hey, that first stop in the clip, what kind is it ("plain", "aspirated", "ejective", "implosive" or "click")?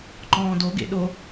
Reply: click